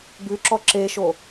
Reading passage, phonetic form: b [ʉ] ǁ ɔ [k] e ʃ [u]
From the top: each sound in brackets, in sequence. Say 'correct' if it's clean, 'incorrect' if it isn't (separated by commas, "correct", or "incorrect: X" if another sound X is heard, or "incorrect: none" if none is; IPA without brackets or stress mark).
correct, incorrect: ǁ, incorrect: o